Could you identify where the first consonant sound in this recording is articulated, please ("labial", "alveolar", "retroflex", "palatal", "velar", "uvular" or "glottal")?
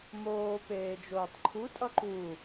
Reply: labial